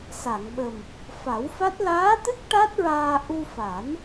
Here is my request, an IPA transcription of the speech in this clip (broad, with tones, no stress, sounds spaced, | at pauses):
s a˨˩˨ ŋ ɓ ə˨˩ m | f a˨˩˦ w f a˦˥ t̚ l aː˧˥ t̪ ɨ˦˥ k̚ ʈ a˦˥ t̚ ɹ aː˧ ʔ u˧ f a˨˩˦ n